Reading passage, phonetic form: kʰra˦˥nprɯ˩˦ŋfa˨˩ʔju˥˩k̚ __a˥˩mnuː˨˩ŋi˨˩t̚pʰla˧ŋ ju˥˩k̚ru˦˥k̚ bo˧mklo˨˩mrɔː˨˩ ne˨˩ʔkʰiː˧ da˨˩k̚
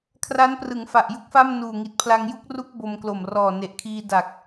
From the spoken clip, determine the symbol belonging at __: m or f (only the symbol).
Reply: f